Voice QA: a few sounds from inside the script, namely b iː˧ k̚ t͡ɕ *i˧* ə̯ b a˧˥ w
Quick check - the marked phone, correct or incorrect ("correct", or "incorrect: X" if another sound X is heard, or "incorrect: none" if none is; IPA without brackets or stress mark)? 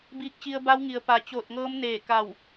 correct